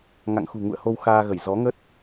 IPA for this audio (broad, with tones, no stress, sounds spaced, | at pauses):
ŋ a̰˧˨ ŋ x ṳ˨˩ ŋ ṵ˧˨ ə̯ h o˧ w x aː˧ ɣ ə˧˩ j z ɔ˨˦ ŋ ə˦˥ t̚